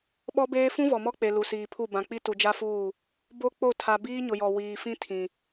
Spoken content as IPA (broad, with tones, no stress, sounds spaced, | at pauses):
ɓ ɔ˦ b eː˦ f ũ˦ v ɔ˨ m ɔ˦ k͡p e˨ l u˨ s iː˨ pʰ u˦˨ b ã˨ k͡p i˦ t u˨ d͡ʒ a˦ f uː˦˨ | b o˦ k͡p o˦˨ tʰ a˨ b iː˦ ɲ ʊ˨ j ɔ˨ w iː˨ f ĩ˦ tʰ ĩ˨